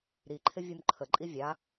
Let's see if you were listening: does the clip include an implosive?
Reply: no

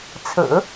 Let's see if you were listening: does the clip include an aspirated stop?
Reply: yes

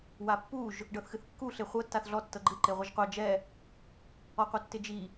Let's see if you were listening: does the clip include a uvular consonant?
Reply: yes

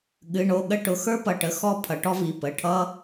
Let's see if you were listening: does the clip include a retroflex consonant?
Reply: yes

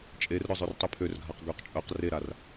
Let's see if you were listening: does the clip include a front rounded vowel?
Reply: yes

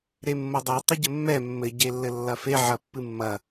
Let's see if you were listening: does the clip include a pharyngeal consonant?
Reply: yes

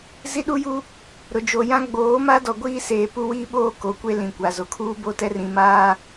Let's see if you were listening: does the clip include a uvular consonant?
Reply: no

